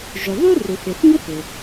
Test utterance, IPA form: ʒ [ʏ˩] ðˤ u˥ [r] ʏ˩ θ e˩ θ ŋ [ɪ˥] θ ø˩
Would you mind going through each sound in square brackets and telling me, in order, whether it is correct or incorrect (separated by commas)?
correct, correct, incorrect